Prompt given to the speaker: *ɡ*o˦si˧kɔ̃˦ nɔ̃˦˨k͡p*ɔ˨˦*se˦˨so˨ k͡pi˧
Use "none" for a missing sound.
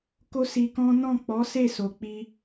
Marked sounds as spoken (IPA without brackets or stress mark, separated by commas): k, ɔ˨˦